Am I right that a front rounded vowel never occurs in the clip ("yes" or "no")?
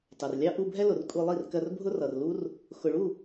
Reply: yes